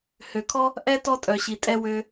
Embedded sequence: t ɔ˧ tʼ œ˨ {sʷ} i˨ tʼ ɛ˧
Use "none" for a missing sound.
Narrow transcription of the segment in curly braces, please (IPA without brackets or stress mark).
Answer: ɕ